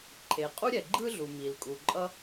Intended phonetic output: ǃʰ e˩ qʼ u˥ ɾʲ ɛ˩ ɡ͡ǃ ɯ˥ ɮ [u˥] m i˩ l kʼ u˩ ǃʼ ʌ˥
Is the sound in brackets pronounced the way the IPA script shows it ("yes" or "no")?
no